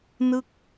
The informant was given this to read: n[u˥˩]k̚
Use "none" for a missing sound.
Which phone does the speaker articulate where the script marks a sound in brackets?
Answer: ɯ˥˩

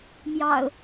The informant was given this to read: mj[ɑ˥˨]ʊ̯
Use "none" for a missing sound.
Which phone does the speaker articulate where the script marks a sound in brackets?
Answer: ɑ̰˨˩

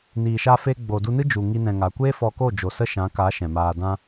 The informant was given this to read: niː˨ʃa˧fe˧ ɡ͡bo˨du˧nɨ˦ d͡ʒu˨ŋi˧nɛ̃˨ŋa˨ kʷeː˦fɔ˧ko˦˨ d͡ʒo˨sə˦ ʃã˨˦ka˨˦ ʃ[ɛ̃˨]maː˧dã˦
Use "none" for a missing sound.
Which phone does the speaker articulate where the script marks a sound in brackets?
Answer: ɛ̃˨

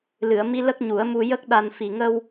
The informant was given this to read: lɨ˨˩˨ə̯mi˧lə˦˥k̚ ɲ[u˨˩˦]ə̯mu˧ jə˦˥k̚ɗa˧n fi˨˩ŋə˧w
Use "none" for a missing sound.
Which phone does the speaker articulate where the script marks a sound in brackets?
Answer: u˨˩˦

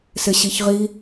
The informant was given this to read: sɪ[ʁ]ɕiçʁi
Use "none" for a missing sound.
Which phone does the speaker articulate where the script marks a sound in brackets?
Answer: none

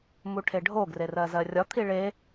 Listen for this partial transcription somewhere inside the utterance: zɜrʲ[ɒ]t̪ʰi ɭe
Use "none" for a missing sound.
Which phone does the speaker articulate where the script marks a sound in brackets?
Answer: ɒ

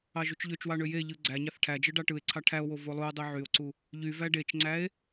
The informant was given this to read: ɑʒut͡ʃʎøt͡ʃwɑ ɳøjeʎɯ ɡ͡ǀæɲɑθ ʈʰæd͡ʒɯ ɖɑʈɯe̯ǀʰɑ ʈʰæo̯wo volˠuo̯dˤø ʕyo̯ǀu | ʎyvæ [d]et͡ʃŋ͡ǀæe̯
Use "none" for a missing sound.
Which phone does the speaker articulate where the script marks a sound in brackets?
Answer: ɖ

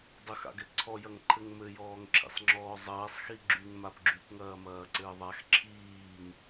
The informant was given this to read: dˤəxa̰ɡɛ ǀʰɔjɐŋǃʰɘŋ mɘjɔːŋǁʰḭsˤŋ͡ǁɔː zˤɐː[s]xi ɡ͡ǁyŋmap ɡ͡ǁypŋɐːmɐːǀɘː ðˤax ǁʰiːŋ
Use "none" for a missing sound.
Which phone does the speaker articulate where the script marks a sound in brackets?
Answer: sˤ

